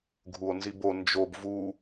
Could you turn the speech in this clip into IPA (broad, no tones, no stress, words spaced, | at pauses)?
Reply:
ɡʱuo̯nzibo nd͡ʒob vu